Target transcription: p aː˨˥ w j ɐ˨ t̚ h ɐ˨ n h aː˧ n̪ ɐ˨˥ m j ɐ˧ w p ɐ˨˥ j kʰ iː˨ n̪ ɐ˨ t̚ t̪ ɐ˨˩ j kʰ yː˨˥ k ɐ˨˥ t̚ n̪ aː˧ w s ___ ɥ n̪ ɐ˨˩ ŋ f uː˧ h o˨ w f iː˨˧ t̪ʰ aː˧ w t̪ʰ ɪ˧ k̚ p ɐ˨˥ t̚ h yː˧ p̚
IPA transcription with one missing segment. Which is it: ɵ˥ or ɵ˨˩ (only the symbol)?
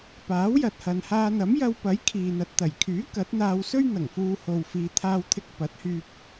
ɵ˥